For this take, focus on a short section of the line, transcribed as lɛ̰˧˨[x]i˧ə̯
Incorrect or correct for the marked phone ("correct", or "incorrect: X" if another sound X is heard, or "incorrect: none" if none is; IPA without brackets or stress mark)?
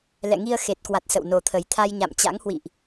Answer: incorrect: ŋ